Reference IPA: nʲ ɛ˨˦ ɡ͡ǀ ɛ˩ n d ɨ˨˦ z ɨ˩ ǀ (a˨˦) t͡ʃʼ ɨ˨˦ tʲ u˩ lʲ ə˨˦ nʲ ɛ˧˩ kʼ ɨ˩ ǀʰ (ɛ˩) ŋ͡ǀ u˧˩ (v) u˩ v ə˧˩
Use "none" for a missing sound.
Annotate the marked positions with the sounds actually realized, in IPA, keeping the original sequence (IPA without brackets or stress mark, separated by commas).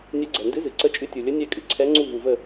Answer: ə˨˦, ɛ˨˦, v